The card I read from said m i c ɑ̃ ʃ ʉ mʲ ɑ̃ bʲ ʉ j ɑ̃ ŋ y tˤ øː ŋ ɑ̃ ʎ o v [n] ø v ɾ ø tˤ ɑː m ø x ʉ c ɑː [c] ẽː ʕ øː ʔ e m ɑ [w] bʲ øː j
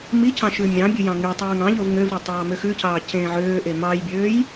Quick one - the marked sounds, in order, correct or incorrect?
incorrect, correct, incorrect

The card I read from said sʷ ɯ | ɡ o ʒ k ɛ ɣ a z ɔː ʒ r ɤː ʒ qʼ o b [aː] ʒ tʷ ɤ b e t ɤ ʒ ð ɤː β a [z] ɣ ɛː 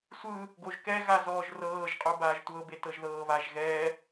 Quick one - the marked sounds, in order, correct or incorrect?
correct, incorrect

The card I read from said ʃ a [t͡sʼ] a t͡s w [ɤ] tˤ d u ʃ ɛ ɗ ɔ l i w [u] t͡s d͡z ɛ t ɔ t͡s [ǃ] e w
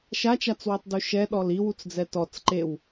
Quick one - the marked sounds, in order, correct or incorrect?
incorrect, correct, correct, correct

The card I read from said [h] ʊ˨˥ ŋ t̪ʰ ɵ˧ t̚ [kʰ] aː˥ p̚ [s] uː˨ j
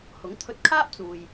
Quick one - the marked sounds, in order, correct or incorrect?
correct, correct, incorrect

